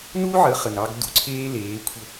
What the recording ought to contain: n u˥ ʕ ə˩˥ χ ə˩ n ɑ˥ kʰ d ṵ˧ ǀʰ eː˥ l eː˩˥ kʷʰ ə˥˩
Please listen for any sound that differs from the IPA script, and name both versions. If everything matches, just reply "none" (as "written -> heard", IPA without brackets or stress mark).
kʰ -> ɡ